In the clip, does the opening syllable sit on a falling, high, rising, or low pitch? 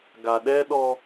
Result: low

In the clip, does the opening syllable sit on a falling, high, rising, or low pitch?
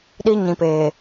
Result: high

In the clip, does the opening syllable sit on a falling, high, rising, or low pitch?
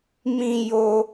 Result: low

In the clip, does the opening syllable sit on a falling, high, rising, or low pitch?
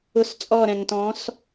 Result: falling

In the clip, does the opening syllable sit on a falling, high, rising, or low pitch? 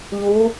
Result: rising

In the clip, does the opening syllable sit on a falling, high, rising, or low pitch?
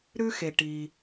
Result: high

